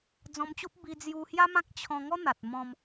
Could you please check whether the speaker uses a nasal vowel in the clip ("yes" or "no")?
yes